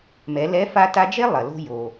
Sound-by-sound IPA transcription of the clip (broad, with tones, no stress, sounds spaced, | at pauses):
m ɛ˩˧ l ɛ˧˥ f a˧ t a˧ d͡ʒ e˥ lˠ ɐ˩ l o̤˧ j o˩